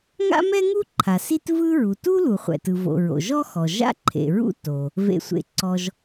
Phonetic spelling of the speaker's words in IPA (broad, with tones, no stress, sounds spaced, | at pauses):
ŋ a̰˥ m ɛ˥ ŋ u˥ ǃʰ a˩ s i˥ t v ɯ˥ ɹ u˩ t u˥ l u˩ χʷ ɛ̰˩ t ɯ˩ v o̰˩ ɹ o̰˩ ʒ ɔ˥ x ɔ˩ ʒ a̰˥ ǃʰ ḛ˩ ɹ ṵ˥ t o˩ | v ḛ˩ sʷ ḛ˩ ǀ ɔ˩ ʒ